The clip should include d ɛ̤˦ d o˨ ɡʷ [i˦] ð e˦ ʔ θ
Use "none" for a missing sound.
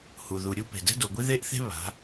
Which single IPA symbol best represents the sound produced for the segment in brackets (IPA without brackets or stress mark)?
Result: i˦